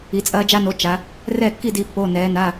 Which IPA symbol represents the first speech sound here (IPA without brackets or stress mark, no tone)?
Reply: i